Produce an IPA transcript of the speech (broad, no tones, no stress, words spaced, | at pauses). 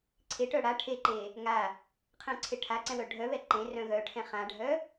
ǀʰeʈœ ɽa ʈʰeǃe | ŋa | qʰɛ̃ǀʰeʈʰaǀɛ̃ wœɖʱœβɛ ǃẽrœ̃ ɣœʈʰɛ̃ χãɖʱœ